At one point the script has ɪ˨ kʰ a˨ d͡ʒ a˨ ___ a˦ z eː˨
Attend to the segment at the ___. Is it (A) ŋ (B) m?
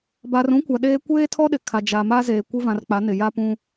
B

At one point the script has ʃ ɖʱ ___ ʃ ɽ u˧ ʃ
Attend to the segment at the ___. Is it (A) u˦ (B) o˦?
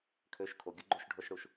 B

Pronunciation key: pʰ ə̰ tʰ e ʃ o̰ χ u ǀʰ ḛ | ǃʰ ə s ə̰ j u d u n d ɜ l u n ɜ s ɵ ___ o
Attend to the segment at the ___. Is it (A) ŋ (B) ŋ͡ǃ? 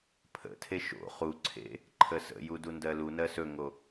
A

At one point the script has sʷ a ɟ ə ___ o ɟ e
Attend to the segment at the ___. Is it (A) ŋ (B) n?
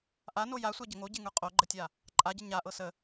A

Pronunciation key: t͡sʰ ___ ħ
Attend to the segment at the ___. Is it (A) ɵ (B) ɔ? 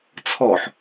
B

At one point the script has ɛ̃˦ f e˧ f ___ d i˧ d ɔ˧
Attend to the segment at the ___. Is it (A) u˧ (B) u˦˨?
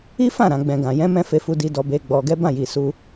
A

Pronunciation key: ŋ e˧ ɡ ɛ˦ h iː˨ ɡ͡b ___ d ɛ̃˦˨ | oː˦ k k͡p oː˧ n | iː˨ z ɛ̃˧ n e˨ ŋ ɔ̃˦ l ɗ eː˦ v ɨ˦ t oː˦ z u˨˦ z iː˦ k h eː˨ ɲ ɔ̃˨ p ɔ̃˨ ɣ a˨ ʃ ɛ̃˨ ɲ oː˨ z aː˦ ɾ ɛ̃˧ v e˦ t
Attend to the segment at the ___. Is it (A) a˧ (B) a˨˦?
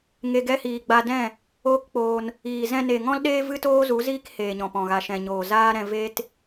A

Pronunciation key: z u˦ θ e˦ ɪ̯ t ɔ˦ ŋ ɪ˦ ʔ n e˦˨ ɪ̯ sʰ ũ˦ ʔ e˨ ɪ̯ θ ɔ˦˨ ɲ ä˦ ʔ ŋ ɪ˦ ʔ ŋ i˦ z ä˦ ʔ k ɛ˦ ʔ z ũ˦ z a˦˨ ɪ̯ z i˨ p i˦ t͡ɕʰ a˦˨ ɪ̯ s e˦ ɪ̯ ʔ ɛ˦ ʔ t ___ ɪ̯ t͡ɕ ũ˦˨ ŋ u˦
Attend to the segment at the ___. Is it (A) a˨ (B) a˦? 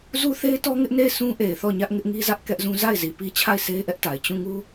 A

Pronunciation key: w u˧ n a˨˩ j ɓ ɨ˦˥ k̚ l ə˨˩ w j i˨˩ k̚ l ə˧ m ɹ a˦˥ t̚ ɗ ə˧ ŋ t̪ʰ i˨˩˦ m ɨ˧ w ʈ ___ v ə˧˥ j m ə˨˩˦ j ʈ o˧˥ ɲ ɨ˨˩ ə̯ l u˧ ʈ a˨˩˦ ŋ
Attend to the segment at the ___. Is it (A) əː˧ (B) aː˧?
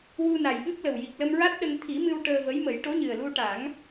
A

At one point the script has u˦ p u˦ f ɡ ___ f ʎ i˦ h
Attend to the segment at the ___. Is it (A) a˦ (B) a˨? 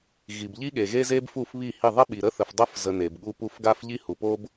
A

